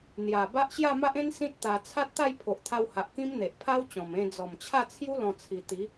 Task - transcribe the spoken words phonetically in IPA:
n̪ j a˨˩ b a˦ ʔ ɕ j a˥˧ m a˦ ʔ ẽ˦ n s ĩ˦ t̚ t̪ a˧ t͡sʰ a˦ t̚ t̪ a˥˧ j pʰ o˨ ʔ t̪ʰ a˧ w h a˨ ʔ k ĩ˦ m n̪ e˨ ʔ pʰ a˦ w t͡ɕ ɔ̃˨˩ m ẽ˧ d͡z ɔ˨˩ m t͡ɕʰ a˥˧ t͡sʰ j u˦ l ɔ̃˧ t͡sʰ i˨˩ t̪ i˨˦

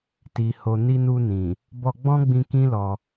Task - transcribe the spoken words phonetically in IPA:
t i˨ h o˨ n i˧ n u˧ n ĩ˨ | b ɔ˧ ɡ͡b ɔ̃˦ ɡ͡b ĩ˧ k ĩ˦ l ɔ˧

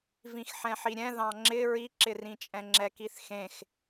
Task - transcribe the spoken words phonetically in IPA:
v ĩ x ħ ɛ̃ ħ i ɾʲ ɛ̃ ð ɑ̃ ŋ͡ǁ ɪ ɹ i ǁ ɪ r ĩ t͡ʃʼ ɛ̃ ŋ͡ǁ ɛ k i θ x ẽ x

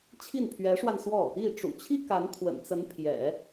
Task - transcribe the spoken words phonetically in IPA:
t͡ɕʰ i˥˩ n pʰ ɥ ɛ˧˥ ʂ w a˧ n s w ɔ˥˩ | i˥˩ ʈ͡ʂ ṵ˨˩ t͡ɕʰ i˥ k a˧˥ n t̪ʰ w ə̰˨˩ n t͡s ə˧˥ n pʰ j ɛ̰˨˩˦

